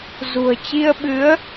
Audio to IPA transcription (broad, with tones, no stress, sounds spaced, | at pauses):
z ṳ˨˩ ə̯ t͡ɕ i˧ ə̯ ɓ ɨ˨˦ ə̯